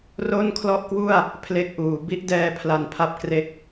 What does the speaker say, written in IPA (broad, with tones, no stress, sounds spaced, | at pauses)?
r o˥˩ n kʰ l ɔ˥˩ ʔ k w u˥˩ a̯ | pʰ l e˥˩ k̚ ʔ uː˩˦ b i˥˩ ʔ d ɛː˧ pʰ l a˧ n pʰ a˦˥ p̚ k r e˦˥ k̚